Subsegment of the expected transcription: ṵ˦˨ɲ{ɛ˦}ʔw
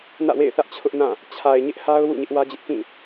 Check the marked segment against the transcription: incorrect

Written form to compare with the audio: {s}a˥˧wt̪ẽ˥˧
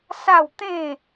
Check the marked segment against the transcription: correct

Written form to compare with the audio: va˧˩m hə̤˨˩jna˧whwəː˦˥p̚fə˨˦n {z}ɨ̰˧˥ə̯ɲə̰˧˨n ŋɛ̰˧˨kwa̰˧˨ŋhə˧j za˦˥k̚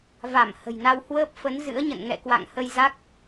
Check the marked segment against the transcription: correct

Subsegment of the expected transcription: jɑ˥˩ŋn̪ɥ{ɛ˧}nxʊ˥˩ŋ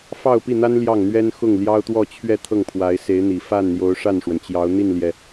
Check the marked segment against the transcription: incorrect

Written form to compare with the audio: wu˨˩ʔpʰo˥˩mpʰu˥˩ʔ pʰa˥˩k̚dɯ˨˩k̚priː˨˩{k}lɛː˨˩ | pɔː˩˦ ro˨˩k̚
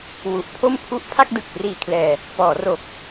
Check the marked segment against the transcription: incorrect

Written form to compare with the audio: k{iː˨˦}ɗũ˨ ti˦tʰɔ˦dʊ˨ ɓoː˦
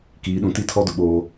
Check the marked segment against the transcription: correct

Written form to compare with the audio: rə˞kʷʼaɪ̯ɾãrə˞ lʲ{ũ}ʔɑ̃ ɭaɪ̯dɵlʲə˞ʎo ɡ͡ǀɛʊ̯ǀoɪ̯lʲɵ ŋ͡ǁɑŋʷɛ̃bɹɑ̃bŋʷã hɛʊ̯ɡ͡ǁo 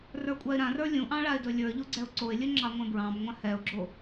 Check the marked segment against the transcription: correct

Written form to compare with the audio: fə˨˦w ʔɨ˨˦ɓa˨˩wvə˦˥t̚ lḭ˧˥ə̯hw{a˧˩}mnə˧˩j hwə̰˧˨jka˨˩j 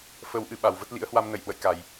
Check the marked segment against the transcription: incorrect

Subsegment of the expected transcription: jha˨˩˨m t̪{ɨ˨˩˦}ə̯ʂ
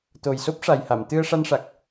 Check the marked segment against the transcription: incorrect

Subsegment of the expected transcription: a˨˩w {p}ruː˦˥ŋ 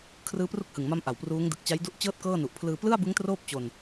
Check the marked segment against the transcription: correct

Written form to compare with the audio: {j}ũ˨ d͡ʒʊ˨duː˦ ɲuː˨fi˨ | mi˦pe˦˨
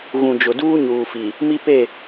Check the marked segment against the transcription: incorrect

